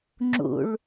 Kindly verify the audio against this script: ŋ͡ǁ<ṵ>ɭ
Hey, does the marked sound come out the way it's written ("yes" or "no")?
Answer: yes